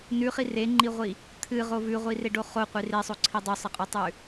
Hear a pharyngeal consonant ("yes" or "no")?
no